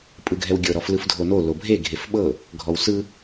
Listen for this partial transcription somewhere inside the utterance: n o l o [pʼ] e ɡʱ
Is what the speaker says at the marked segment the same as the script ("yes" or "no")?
no